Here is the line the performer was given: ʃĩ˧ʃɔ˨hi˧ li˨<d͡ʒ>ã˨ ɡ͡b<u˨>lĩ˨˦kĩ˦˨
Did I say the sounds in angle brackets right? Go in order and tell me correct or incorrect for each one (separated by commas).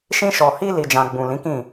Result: correct, incorrect